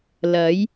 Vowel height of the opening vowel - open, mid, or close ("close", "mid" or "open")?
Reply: open